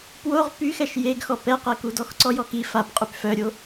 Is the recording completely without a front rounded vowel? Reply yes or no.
no